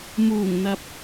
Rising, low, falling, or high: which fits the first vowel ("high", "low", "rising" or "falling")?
low